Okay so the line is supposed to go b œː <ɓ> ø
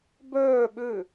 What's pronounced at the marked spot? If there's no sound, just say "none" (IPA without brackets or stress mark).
ɓ